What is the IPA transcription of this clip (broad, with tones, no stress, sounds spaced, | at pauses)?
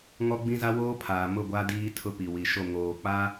ŋ ɔ˦ ɡ͡b ĩ˦ z a˦ w oː˦ pʰ aː˨ m ʊ˦˨ ɡʷ a˦ d iː˦ tʰ ʊ˦ p i˨ w i˨ ʃ o˦˨ ŋ oː˨ k͡p a˦